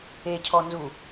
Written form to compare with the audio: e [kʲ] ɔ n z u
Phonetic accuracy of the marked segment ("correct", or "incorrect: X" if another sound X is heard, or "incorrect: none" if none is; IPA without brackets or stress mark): incorrect: cʰ